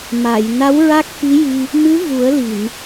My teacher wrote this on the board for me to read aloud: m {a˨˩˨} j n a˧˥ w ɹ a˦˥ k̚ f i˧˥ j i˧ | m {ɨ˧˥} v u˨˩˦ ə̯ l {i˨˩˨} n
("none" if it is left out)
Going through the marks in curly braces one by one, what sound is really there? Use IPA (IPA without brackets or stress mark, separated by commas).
a˨˩˨, ɨ˧˥, i˨˩˨